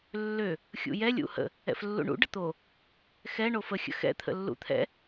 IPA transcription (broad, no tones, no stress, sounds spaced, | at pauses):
lː ø | xʲ ṵ j ɛ lʲ ṵ h ə̰ | ɛ̰ f lː ṵ ɳ ṵ ɖ ə t̪ o | x ɛ ɳ o f ə xʲ ə̰ x ɛ̰ t̪ʰ ə̰ lː ṵ t̪ʰ ɛ̰